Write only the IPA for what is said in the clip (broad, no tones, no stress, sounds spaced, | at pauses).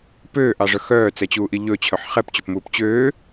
p øː ʔ ɑ ʐ œ x œː t͡s ɛ t͡ɕ uː ʔ i ʎ ɵ t͡ɕʰ œ ħ χ ɛ p t͡ɕ ɵ p m uː p t͡ɕ øː